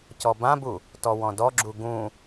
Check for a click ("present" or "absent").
present